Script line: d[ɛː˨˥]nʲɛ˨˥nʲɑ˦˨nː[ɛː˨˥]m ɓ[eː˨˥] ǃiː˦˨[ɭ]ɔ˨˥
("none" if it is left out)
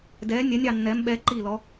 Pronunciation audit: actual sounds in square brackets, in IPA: ɛː˨˥, ɛː˨˥, ɛː˨˥, l

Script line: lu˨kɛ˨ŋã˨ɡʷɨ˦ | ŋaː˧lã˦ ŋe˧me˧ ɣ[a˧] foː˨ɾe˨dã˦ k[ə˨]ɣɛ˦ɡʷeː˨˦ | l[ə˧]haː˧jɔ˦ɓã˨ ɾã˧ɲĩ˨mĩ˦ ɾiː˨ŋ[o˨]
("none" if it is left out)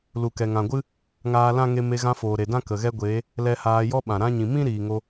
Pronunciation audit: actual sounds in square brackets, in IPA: ã˧, ə˨, ɛ˧, o˧

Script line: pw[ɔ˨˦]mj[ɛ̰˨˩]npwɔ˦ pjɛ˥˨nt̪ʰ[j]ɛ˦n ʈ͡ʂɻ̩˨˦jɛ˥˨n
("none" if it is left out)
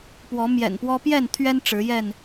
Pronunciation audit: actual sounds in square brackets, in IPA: ɔ˨˦, ɛ̰˨˩, ɥ

